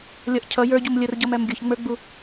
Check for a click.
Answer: absent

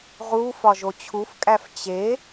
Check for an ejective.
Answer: present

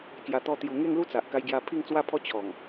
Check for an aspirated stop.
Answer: present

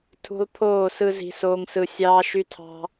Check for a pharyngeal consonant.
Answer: absent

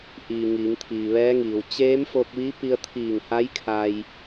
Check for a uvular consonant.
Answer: absent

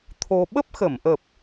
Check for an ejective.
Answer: absent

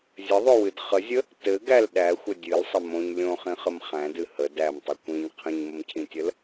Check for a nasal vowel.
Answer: present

